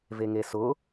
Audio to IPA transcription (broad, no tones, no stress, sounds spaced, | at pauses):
v e ŋ e s ʊ